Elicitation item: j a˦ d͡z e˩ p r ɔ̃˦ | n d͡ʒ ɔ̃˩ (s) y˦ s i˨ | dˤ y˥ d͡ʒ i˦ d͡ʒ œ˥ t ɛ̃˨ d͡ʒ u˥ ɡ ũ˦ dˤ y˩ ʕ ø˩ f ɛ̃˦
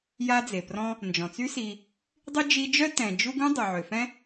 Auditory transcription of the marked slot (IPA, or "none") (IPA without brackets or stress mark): t͡s